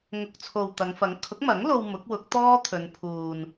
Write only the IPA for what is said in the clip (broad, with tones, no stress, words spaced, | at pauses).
ŋʊ˨k̚t͡sʰo˨w t̪ɐ˨˧ŋfɐ˨˥ŋ kʰʊ˨˥k̚mɐ˨˥ŋlo˧w mʊ˨˥k̚wʊ˨˥k̚ t̪ɔː˥ t̪ʰɵ˨˧npʰuː˨n